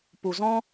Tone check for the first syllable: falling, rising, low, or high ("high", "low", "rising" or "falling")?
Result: low